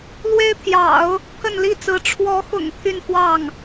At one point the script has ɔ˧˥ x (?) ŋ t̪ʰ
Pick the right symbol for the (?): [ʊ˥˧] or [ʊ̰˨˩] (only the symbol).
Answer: ʊ̰˨˩